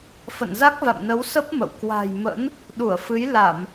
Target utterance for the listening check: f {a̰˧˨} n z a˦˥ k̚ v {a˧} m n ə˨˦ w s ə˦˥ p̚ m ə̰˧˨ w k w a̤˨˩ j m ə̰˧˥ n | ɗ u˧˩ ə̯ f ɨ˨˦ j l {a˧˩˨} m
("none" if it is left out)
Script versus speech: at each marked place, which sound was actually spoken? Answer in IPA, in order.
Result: ə̰˧˨, a̰˧˨, a˧˩˨

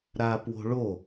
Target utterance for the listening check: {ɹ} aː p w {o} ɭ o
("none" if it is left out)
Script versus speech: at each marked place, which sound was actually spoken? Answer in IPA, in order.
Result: ɾ, o̤

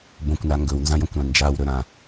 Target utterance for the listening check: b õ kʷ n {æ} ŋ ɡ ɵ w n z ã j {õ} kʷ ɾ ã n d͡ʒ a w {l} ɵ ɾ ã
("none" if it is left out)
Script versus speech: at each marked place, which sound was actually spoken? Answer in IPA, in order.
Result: a, ɔ̃, ɾ

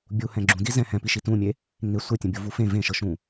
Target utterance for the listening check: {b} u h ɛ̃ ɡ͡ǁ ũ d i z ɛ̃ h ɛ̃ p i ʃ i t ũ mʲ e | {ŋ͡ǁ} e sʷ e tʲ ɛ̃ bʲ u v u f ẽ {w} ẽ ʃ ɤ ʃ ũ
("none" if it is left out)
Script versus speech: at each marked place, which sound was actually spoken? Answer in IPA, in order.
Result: bʲ, ŋ, v

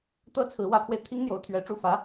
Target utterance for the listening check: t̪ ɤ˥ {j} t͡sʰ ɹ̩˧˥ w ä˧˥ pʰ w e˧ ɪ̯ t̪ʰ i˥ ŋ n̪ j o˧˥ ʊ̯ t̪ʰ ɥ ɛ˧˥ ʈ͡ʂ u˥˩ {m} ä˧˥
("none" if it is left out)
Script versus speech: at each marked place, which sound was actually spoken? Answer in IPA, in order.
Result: none, f

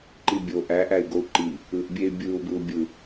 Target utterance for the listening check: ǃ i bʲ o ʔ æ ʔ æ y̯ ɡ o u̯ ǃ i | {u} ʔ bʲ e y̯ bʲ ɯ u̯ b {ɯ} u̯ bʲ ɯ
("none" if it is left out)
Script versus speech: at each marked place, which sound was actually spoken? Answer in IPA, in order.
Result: ɯ, ɯ

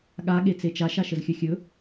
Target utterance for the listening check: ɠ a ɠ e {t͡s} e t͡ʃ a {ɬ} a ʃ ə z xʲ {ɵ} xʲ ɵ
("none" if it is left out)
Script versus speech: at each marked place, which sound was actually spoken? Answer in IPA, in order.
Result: t͡s, ʃ, ɵ

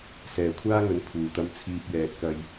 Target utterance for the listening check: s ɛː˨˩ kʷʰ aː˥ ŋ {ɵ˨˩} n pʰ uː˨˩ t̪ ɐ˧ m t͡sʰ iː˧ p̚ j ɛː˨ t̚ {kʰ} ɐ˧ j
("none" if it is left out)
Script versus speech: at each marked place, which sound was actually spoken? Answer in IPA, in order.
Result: ɵ˨˥, k

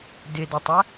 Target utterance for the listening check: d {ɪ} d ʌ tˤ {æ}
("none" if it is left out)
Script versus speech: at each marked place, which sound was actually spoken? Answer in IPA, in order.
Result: ɪ, æ

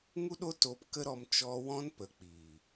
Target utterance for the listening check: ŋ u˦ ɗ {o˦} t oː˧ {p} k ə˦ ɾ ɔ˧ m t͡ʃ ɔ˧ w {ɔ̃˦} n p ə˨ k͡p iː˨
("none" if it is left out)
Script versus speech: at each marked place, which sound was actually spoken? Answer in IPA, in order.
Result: o˦, p, ɔ̃˦

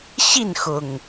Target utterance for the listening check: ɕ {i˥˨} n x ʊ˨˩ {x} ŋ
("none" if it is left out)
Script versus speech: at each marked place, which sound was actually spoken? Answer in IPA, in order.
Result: i˥˨, none

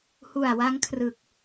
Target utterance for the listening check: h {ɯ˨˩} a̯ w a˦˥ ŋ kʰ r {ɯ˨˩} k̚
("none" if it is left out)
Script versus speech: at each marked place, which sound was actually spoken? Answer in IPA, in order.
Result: u˨˩, ɯ˨˩

